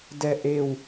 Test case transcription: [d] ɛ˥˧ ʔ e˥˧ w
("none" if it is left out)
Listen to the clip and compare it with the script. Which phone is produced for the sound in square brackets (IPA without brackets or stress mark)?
d